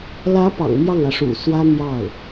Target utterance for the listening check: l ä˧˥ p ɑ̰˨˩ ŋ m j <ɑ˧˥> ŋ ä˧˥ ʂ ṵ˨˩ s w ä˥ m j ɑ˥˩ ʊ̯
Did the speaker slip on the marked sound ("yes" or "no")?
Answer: yes